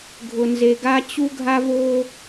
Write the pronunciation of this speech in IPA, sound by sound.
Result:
ɡʱ ʊ˨ n z e˨ ɡ a˦ t͡ɕ u˦ ɡʱ a˦ v o˦

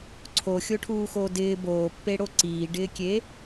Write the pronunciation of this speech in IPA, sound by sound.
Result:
ǀʰ o xʲ o ʈʰ uː x oː d ɪː b oː pː e ɽ o ǀ iː ɖ ɪː kʲ eː

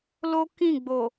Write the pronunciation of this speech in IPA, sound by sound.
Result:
l o˦ k ĩ˦˨ ɡ͡b o˨

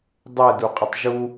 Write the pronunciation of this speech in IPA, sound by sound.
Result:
dˤ ɛ d u qʼ ə tˤ ʒ u

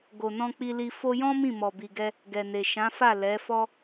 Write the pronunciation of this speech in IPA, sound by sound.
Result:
ɡ o˨ n ɔ̃˧ k͡p i˧ l i˧ f o˧ j ɔ̃˦ m ĩ˦˨ m ɔ˨ b i˨ ɡ ɛ˧ | ɡ ɛ˨ n e˨ ʃ ã˨˦ f a˦˨ l ɛ˨˦ f ɔ˦

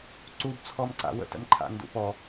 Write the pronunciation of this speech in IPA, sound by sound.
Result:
ǀ u b t͡sʰ ɔ m ǀ a̰ w ə̰ t ə̰ m ǃʰ a̰ n d ṵ p ɔ

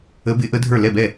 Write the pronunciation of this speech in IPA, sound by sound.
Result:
ə˧˥ b ɪ˧˥ ʔ ə˧˥ dʱ ə˞˥˩ l ɛ˥˩ b ɛ˥˩

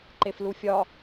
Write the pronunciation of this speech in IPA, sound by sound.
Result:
ǃ e f l u fʲ ɒ

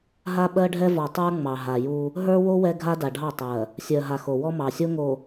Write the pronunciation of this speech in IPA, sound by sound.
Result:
ɦ a˦ ɓ ɜ˦ ɖʱ ɛ˦ v ɔ˨ tˤ ə˞˦ ŋ͡m ɑ˨ ɦ a˨ j u˦ | ɦ ə˞˦ w o˦ w ɛ˦ ɡʱ a˦ d a˨ ɖʱ ɑ˦˨ tˤ ɜ˨ | sʲ ɜ˨ ɦ a˨ x o˨ w ɔ˦ m ɑ˨ sʲ o˦ ŋ o˨

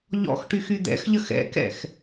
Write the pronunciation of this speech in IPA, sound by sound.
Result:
ʎ ɔ̰ x ʈ y x y d̪ ɛ̰ x ʎ ə x ɛ̰ k ɛ̰ x

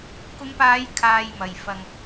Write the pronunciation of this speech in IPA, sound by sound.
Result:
k ʊ˨˧ ŋ p aː˨˧ j kʰ aː˧ j m ɐ˨ j f ɐ˧ ŋ

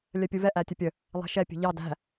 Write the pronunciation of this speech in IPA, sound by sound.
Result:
lʲ ɜ pʲ u v ɛ ʔ æ tʲ ə pʲ ə | lˠ ɛ̤ ʃ ɛ pʲ ə̤ ʎ ɑ d æ̤

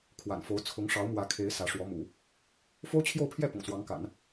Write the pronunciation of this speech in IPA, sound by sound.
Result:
kʰ w a̰˨˩ n f o˧˥ ʊ̯ t͡sʰ ʊ˧˥ ŋ ʂ ɑ˧˥ ʊ̯ m w ä˧˥ kʰ e˧˥ ɪ̯ s ä˧˥ ʂ w ɔ˧˥ m ṵ˨˩˦ | f o˥ ʊ̯ t͡ɕʰ j o˥˧ ʊ̯ pʰ j ɛ˥˩ p ʊ̰˨˩ ŋ s w ɑ˧˥ ŋ k a̰˨˩˦ n

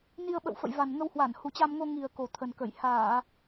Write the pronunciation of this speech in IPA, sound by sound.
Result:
n i˧ ə̯ ɓ ə̰˧˨ w f ə̰˧˨ j v a˨˩ n ŋ ə˧ w h w a˧˩ n h u˨˩ t͡ɕ a˧ m ŋ o˧ ŋ i˨˩ ə̯ k o˨˩ t̪ʰ ə˨˩ n k ə˧˩ j h aː˧˩˨

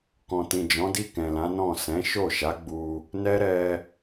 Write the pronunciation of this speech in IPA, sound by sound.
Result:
k ɔ̃˨ t ĩ˨ d͡ʒ ɔ̃˨˦ d i˦˨ k ɛ̃˨ l ã˨˦ n ɔ̃˦˨ s ɛ̃˨˦ ʃ o˦˨ ʃ a˨˦ ɡ͡b u˧ | n ɛ˦ ɾ ɛ˧

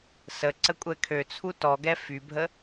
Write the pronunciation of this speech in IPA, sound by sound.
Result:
s ə ǀ ə kʷʼ ɛ kʰ ø t͡sʰ u t ɔ ɡ ɛ f y bʱ ə

